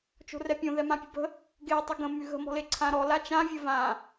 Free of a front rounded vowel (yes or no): no